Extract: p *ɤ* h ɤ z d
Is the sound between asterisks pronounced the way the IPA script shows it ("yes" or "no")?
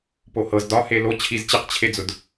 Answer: no